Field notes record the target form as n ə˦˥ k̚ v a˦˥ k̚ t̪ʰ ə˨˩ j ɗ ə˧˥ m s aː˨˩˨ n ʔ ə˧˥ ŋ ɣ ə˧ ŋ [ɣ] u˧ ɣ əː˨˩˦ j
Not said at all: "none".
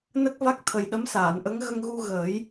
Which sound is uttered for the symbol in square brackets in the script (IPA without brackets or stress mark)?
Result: ɣ